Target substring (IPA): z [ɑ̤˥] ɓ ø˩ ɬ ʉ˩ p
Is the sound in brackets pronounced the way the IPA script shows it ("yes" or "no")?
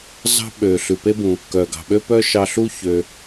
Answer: yes